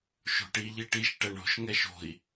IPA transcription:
ʃ o̤ ʈ iː ʎ i ʈ i ʃ ʈ ɛ ɳ o̤ ʃ ŋ ɛ ʃ o̤ i̯

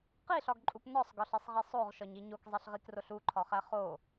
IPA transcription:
q i ɬ ɒ ɡ ǃʼ u p n ɒ sˤ ɡ ɒ ɬ i sˤ ʁ e sˤ o ʁ ʃ ɒ ɲ i ɲ o k zˤ i ɬ ʁ i k r o ɬ u ǃʰ ɒ χ æ χ o

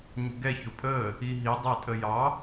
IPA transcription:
ɲ ə̤ ɡ ɛ ç ʊ pʼ əː | i ɦ i dˤ ə˞ tʼ ə j ɑ

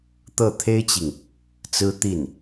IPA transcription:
t̪ ɤ˥˩ t̪ʰ e˥ ɪ̯ t͡ɕ i˨ ŋ | t͡s ɹ̩˥ t̪ i˥˩ n

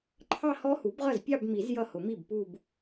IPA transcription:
ǃʰ ɑ˥˧ h ɔ˦˥ h u˩˥ b ʁ ʌ˥˩ z pʲ ɑ˥˧ b m i˨˩˦ z j ʌ˥˩ h ʊ˨˩˦ m i˥˩ b p u˥˧ b

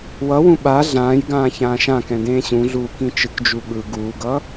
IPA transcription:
w ʌ w ũ ɓ a ɮ ãː j ɡ ãː ç ãː ʃ ã k ɛ̃ d ẽː ɕ ũ ɮ uː k ĩ t͡ʃ ɯ k d͡ʒ u ɓ ɯ ɡ uː ɡ ʌ

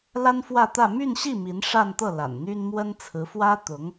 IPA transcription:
l a˥ n f w ä˥˧ t̪ ä˥˧ m y˥˧ n ɕ i˥˩ m i˧˥ n ʂ a˥˧ n t̪ ɤ˥˩ l a̰˨˩ n n̪ y˥ n m w ə˥ n t͡sʰ ɹ̩˧˥ f w ä˥ t̪ ʊ˧˥ ŋ

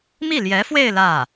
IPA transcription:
m i˥˩ l j ɛ˧˥ f w e˥˧ ɪ̯ l ä˥˩

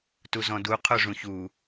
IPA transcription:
t u z ɔ̃ d u qʰ o ʐ ũ ç u

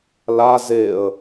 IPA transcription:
l a z e ə̯

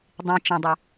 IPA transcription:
dˤ ĩ t͡ʃ ə̃ dˤ ɪ

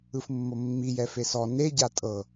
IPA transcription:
ɯ f mː o mː i j ɛ f e s ɔ n e ɟ a tʼ ɤ

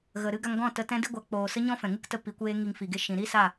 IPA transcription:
ɣ ə˨ ɾ ɨ˧ ɡ a˧ ŋ ɡ ɔ̃˦˨ t ə˧ t ɛ̃˦ d ɨ˦ ɡʷ a˨˦ k͡p oː˨ s ə˦ ɲ ɔ̃˦ f ɛ̃˨ ŋ ɨ˦ k t ə˧ p i˨ kʷ eː˧ ŋ i˧ ŋ f i˨ ɡ e˦ ʃ ĩ˨ ɾ i˦ s a˦˨

